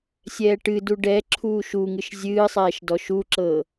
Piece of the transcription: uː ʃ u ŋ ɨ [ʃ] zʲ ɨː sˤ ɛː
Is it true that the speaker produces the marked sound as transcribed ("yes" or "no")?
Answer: yes